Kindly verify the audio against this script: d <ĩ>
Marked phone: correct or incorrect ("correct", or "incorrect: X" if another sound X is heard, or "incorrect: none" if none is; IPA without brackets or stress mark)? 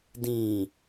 correct